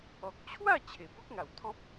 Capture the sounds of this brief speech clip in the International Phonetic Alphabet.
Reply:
ɔ˨k̚t͡ɕʰwa˥˧ t͡ɕʰe˨˩bɔ˦k̚ŋa˨˩wt̪ʰɔ̃˦p̚

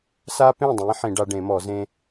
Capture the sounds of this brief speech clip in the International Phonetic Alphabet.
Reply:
sa˦pẽ˥˩dˤẽ˨˦ ħĩ˨˩˦ ɖa˨˦ɖẽ˨˩˦mɔ˨˩˦ zẽ˦

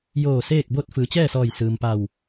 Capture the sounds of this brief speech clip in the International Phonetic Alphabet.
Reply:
joː˧˩seː˥˨k̚bo˥˨t̚ fɯː˩˧t͡ɕɛː˥˨sɔː˧˩j sɯː˩mpa˧˩w

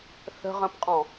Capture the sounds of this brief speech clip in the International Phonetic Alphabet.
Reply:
θə̤ʁə̃pqʼɔ̃

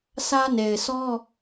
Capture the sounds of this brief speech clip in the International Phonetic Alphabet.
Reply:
sʰä˦ne˨ɪ̯sɔ˦

